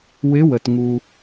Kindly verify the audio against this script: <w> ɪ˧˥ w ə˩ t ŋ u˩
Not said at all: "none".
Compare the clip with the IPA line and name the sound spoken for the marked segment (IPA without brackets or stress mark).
w